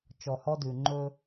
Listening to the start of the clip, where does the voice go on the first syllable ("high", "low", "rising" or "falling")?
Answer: low